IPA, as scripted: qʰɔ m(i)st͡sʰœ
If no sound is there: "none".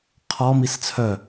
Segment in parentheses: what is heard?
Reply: i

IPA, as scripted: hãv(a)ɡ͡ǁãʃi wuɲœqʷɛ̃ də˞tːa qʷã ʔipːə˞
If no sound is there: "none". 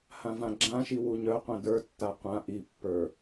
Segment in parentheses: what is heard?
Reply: ã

